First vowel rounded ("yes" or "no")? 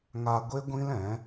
no